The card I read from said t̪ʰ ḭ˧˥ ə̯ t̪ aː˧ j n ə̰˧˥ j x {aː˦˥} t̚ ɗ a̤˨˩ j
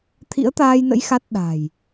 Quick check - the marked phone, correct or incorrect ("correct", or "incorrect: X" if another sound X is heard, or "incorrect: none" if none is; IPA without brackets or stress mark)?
incorrect: a˦˥